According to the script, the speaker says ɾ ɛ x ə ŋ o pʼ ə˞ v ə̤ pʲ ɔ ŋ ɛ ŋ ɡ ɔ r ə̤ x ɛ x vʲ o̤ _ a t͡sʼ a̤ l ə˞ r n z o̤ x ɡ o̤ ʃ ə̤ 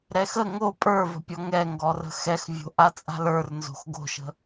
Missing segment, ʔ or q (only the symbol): ʔ